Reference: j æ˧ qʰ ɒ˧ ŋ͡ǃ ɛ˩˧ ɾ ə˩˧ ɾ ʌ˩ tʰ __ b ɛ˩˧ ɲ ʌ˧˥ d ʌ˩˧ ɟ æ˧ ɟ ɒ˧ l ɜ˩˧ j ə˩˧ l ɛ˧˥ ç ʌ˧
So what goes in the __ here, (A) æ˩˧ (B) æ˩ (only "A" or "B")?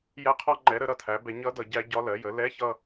A